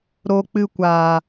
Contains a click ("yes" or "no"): no